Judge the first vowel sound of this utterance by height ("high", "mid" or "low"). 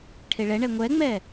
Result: mid